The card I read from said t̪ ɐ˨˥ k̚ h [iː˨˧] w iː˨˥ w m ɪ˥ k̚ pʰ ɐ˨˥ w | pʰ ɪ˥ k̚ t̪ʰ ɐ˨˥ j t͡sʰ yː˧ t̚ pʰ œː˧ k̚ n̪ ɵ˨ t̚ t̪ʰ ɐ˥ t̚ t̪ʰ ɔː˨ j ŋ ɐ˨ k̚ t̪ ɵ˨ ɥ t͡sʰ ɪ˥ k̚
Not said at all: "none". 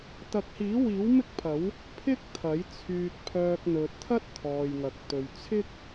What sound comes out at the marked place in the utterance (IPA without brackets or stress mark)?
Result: iː˨˥